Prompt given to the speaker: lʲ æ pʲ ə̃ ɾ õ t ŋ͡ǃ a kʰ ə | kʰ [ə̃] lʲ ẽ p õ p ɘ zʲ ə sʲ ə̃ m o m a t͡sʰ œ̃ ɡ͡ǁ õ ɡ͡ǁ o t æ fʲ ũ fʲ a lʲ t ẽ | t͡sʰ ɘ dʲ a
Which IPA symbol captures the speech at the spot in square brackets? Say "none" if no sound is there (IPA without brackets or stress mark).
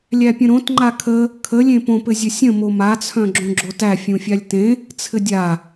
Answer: ə